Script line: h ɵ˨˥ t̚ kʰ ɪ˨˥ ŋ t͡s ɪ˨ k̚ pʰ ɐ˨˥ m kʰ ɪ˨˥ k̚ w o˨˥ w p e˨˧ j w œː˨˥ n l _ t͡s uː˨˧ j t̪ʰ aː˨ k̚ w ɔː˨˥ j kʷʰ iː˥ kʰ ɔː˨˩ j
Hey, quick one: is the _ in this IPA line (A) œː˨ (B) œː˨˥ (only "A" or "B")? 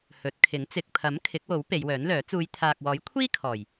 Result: B